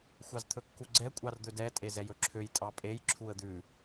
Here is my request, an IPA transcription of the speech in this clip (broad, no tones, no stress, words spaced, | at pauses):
xʷɑzt̪ʰɵkːuɡ͡ǀɛ kʷʼɑrd̪ɵdɛ tʼezɛjɵǁʰøj tʼɑpʼej ǁʰuə̯d̪ʉ